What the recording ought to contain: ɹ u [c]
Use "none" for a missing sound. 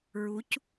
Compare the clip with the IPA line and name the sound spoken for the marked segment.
c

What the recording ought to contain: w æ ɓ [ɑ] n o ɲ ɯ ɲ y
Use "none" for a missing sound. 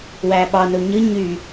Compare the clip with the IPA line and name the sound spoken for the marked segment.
ɑ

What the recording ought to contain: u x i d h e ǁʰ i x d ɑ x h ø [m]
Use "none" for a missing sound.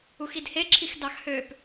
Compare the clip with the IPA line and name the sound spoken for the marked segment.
p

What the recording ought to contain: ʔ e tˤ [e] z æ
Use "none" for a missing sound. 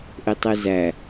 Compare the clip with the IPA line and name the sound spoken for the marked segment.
ɛ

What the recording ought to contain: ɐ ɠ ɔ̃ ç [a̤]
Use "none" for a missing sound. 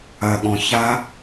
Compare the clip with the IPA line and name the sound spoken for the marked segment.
a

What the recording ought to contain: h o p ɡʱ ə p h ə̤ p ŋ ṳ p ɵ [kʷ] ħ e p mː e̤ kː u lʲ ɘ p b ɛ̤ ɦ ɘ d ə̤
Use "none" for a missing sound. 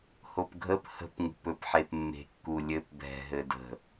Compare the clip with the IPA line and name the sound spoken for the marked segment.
p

